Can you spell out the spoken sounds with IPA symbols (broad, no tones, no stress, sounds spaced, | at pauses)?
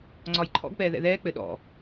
ŋ͡ǀ ɒ j ǃʰ ɔ̰ ɡ p ɛː ð ɛ̰ ð ɛː k͡p ɘ ɗ ɔ̰